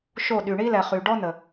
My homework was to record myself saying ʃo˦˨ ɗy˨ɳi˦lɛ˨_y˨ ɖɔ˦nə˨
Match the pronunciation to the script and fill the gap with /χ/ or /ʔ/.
χ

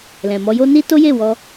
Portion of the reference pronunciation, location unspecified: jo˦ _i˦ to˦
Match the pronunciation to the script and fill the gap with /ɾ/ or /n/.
n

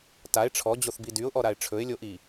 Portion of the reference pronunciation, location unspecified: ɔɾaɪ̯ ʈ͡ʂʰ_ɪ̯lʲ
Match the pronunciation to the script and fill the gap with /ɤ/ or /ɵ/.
ɵ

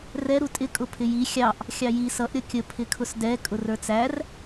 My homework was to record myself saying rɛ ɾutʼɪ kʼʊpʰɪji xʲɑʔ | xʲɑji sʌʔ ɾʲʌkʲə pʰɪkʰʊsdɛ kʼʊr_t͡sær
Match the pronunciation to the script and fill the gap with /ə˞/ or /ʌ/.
ə˞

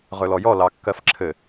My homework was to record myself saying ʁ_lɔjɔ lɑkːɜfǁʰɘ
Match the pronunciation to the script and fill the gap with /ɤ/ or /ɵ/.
ɵ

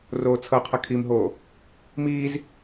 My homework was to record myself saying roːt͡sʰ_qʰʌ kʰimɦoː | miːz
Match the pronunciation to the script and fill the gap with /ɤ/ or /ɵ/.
ɤ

